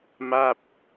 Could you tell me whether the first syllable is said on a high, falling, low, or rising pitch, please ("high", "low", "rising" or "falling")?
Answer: falling